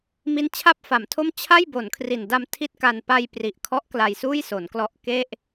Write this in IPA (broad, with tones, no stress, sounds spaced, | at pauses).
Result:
m i˦˥ n t͡ɕʰ a˥˩ p̚ f a˩˦ m tʰ o˥˩ m t͡ɕʰ a˥˩ j b o˩˦ n kʰ r i˨˩ n d a˧ m tʰ i˥˩ t̚ k a˧ n p a˧ j p r i˨˩ ʔ kʰ ɔ˦˥ ʔ k l a˧ j s uː˥˩ j s o˩˦ n k l ɔ˦˥ ʔ k e˥˩ ʔ